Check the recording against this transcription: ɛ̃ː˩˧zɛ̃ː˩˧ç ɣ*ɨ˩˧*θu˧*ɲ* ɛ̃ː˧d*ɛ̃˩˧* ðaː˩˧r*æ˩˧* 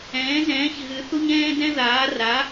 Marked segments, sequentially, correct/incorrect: correct, correct, incorrect, incorrect

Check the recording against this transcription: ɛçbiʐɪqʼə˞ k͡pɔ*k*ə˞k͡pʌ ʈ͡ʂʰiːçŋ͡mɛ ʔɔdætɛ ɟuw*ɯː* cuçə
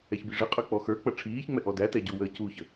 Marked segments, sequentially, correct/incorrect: incorrect, incorrect

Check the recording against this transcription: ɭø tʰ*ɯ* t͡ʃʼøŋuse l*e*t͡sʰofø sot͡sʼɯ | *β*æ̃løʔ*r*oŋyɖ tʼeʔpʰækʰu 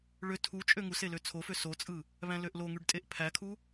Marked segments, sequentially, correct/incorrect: incorrect, incorrect, correct, incorrect

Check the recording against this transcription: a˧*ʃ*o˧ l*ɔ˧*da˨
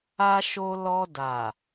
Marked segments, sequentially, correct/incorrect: correct, correct

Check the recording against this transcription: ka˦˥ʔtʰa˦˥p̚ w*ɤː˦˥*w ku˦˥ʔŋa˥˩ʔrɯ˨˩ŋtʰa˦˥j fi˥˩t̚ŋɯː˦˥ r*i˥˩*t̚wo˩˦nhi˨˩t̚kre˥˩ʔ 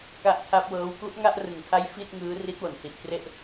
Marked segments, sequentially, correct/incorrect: correct, incorrect

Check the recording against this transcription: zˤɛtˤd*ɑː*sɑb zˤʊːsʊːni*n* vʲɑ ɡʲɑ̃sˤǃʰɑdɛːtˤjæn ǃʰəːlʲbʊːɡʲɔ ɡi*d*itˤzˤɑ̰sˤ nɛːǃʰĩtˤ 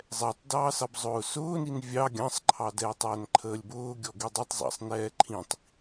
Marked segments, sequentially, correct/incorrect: correct, correct, incorrect

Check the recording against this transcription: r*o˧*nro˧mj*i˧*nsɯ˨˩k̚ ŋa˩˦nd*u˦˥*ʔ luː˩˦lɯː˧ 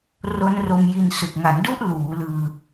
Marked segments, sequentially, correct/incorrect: incorrect, correct, correct

